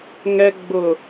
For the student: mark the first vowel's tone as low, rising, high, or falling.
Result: high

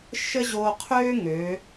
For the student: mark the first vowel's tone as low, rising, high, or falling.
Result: high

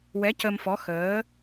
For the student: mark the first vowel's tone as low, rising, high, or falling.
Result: rising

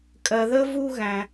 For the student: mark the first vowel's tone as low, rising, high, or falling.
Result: low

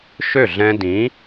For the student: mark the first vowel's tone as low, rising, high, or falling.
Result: falling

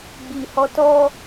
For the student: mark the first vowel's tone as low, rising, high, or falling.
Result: low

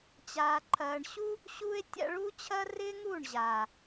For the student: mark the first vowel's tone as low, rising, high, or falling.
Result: low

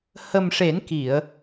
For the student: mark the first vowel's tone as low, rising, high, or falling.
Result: low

